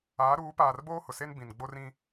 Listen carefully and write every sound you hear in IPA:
aː˨˦ ɾ uː˨˦ p aː˨ r b oː˦ h ʊ˨ s e˦ n b ĩ˨ n ɡ͡b o˦ r ĩ˦

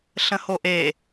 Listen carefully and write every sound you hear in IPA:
ɬ ə̃ h o ʔ e

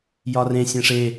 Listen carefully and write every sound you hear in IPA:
j ɒ r ẽ sʲ ẽ ʂ e

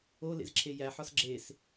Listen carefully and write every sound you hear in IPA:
o l ḛ z ǁʰ e j æ ħ ɒ s ɡ͡ǁ e s

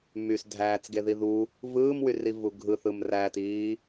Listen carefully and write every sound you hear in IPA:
m y s dʱ æː t͡s ɡ e ð i ð u | v ɯː m w y r i v u ɡʱ ɯ θ ɯ m r æ t iː

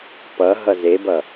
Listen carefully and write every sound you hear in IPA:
p ʌ ɦ ʌ z e b ʌ

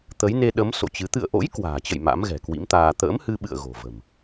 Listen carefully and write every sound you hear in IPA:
t̪ ə˨˦ j n e˧ ɗ ə˨˦ m s o̰˧˨ t͡ɕ ɨ˨˦ t̪ ɨ̰˧˨ ə̯ ʔ o̰˧˥ j k w a̤ː˨˩ t͡ɕ ə̰˧˨ j m a̰˧˥ m ɣ ɛ̤˨˩ k w ḭ˧˥ m t̪ aː˧ t̪ ə̰ː˧˥ m h ɨ˧ ɓ ɨ̰˧˨ ə̯ ɣ o̤˨˩ v ə̤˨˩ m

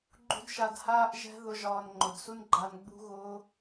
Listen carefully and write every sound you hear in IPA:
ɡ͡ǃ ṳ˦ d ʃ a˧ d h aː˦ ʔ ʒ ɛ̤˦ ð ʊ˦ ʒ ɒː˧ n ŋ͡ǃ ʊ˨ d s u˦ n ɡ͡ǃ a˧ n ɡ͡b ṳ˦ ɣ ʊː˦

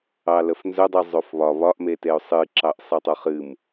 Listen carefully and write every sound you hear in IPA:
ɑ l ə f n z ɵ dˤ ɨ zˤ o f β ɒ β ɒ ʔ m e t e ʊ̯ sˤ ɨ ǁ ɑ ʔ sˤ ɨ tˤ o χ ɨ m

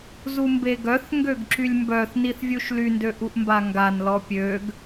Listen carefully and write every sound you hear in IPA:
z u m b e ɡ œ θ ŋ ɡ ø ɡ ǁ y lʲ m b œ θ n i θ vʲ u ʃ l y n d ø ʔ u ʔ m b a ŋ ɡ a n l ɔ pʲ ø ɡ

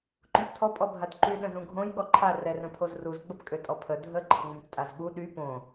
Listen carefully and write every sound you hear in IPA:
ǃ ũ p tʰ ɔ pʼ ɔ bʱ a d ǃ y ɗ ə̃ z ũ ɡʱ õ j ɠ ɔ ǃʰ a r ɛ r ə̃ pʰ o z r u z ɡ͡b ə p kʼ ø tʼ ɔ pʰ ə dʱ ə ǃʰ ə ŋ͡m ũ p tʼ a z ɠ u ɗ y p õ

